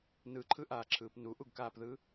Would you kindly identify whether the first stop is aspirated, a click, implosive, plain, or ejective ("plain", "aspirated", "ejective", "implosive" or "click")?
click